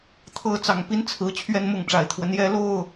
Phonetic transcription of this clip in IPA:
t̪ʰ ɤ˦ t͡s ɑ˨˩ ŋ p i˦ n t͡sʰ ɹ̩˨˦ t͡ɕʰ ɥ ɛ˦ n m ʊ˥˨ ŋ ʈ͡ʂ a˨˩ ɪ̯ t̪ʰ w ə˦ n j ɛ˦ l o˥˨ ʊ̯

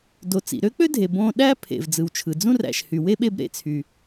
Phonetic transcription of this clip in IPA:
d o˩ t͡s ḭ˩ ɾ ø˥ k͡p ø˥ dʱ e˩ b õ˧ ɗ æ˥ pʰ ḛ˩ v d͡z ɯ˩ w t͡ʃʰ ɯ˩ d͡z ũ˥ r æ̰˩ ʃ h y˩ w e˥ ɓ e˧ b ɾ ḛ˩ t͡sʰ y˩

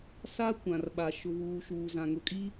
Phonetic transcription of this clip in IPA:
s a˦ kʷ ã˨ r ɓ a˨ ʃ ʊ˨ β uː˨ ʃ uː˨ z ã˨ ŋ ʊ˨ kʼ i˦

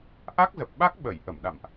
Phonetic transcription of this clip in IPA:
ʔ a˦˥ k̚ z ə˨˩ p̚ ɓ a˦˥ k̚ ɓ ə˧˩ j ʔ ə˧˩ m ɗ a̰˧˨ m ʔ

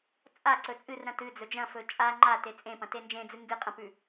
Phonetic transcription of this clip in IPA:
t͡sʼ a ǀ ɵ t͡sʼ ɨ r ɾ ɐ̃ t ɨ d͡z ɵ d͡ʒ ɐ̃ f ɵ t͡ʃʼ a ŋ͡ǃ a t e t͡sʼ ẽ p ɐ̃ t e n d͡ʒ ẽ d͡z ɨ ŋ ɡ ɨ qʼ ɐ̃ p ʉ

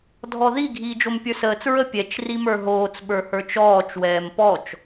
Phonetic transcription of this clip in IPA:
dʱ ɔ ð i ɡʱ iː d͡ʒ o m pʲ ə˞ s əː t͡s ɹ ə pʲ ɛ t͡ʃ r i m ə˞ ɦ oː t͡s ɓ ə˞ h ə˞ t͡ʃ ɔː t͡ʃ w ɛː m p ɔ t͡ʃ

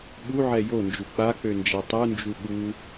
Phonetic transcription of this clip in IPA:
ɓ u ʕ ɛ j o n d͡ʒ u k͡p a k͡p ø n d͡ʒ ɛ tˤ u n d͡ʒ u ɠ u

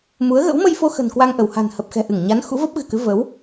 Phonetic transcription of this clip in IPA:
m u˨˦ ə̯ ɣ ə̰˧˥ w m ə˧ j f o˧ x ə̤˨˩ n k w a˧ ŋ ʔ ə˧˩ w h a̤˨˩ n h ə˨˩ p̚ x ɛ̤˨˩ ʔ ɨ˧˩ ŋ ɲ a˨˦ n x ṵ˧˥ v ə˦˥ p̚ ɣ ɨ̤˨˩ k ɨ˨˦ v ə˨˦ w

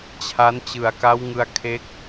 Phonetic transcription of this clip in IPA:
t͡ɕʰ a˦˥ n t͡ɕ ɯ˨˩ a̯ k a˦˥ w ŋ ɯ˧ a̯ kʰ e˦˥ k̚

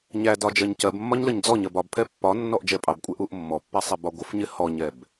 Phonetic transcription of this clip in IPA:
ɲ æ d ɒ d͡ʒ ɜ ɲ c ɜ b mː ɒ ɲ l ə ɲ d͡z ɔ ɲ ɜ b ɒ b pʰ ɛ pː ɒ nː ɔ ʔ d͡ʒ ɛ pʼ ɑ b kʷʼ ɛ ʔ u ʔ mː ɔ pː ɛ sˤ i b ɒ ɡʷ ə f ɲ ɪ h ɔ ɲ ɛ b

